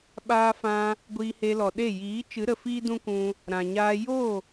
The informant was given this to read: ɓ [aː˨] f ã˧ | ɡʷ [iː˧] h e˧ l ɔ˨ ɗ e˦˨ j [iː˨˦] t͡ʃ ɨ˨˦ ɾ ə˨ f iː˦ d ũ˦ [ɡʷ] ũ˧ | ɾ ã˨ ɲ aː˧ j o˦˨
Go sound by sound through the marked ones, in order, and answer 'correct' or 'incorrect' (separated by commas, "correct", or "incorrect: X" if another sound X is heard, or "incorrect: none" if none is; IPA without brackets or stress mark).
incorrect: aː˧, correct, correct, incorrect: kʷ